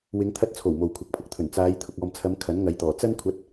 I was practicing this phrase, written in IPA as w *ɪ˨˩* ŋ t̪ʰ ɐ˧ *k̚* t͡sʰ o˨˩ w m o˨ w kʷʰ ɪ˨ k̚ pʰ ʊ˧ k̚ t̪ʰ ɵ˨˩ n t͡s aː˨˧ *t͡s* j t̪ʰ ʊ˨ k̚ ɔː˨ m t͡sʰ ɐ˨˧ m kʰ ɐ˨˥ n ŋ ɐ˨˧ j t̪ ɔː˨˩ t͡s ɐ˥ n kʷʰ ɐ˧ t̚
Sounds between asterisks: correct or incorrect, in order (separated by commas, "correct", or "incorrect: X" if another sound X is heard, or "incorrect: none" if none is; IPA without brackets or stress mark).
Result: incorrect: ɪ˨˧, incorrect: t̚, incorrect: none